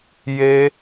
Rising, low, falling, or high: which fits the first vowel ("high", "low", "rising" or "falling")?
high